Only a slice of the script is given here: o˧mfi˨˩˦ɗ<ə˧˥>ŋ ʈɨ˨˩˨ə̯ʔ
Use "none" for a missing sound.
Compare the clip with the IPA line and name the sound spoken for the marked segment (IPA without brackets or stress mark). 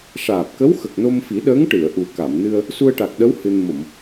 əː˧˥